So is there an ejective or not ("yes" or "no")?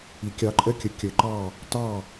yes